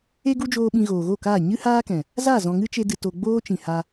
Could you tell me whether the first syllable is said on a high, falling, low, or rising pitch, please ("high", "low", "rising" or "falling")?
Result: high